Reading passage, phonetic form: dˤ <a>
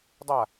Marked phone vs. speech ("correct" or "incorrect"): correct